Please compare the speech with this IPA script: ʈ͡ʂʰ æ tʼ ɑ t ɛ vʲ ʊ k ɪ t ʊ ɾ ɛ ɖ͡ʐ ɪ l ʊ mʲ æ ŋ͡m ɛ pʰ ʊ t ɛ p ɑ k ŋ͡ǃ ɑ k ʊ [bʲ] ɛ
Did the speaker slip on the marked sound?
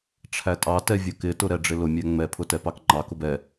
yes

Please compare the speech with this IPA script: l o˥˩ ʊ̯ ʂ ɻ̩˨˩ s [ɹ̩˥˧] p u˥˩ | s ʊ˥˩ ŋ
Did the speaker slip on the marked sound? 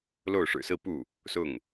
no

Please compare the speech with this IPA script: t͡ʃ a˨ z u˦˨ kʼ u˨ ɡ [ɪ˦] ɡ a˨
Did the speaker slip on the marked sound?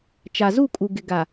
yes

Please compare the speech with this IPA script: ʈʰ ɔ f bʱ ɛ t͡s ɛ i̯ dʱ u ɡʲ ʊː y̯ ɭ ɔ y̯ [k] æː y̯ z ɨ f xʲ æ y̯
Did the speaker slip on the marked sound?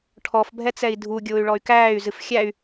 no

